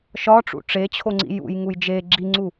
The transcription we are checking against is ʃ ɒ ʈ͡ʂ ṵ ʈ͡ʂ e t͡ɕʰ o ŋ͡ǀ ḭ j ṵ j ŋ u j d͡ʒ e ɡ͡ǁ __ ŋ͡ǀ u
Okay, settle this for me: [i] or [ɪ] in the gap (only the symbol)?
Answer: i